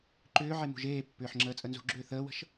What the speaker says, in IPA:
ǃ ʏː ʕ e m ṳ ʒ eː pː ʏː ħ ŋ͡ǁ əː t͡sʼ ə n z ṳ ɡ͡ǁ ʏː θ əː w ə̤ ʃ

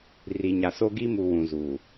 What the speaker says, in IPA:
r i˨ ɲ a˨ s o˦ ɡ i˦ m u˨ w ũ˨ z uː˨

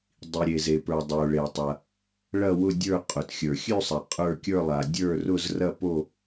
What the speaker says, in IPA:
dˤ i˩ ɾʲ e˩ z e˩ p ə˞˩ dˤ o˩ ɭ e˩ tˤ ɐ˩ | ɭ ɐ˦˨ w ʊ˦˨ dʲ ə˞˦˨ qʼ ʊ˩ t xʲ ə˞˩ xʲ ʉ˦˨ sˤ ɐ˩ qʼ ə˞˦˨ kʲ ə˞˦˨ lˠ a˩ dʲ ə˞˦˨ r ʊ˦˨ z r ɐ˦˨ p o˦˨

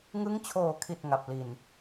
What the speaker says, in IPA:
ŋ ɯ˦˥ ŋ t͡ɕʰ oː˨˩ kʰ i˨˩ t̚ ŋ a˨˩ p̚ l i˨˩ n

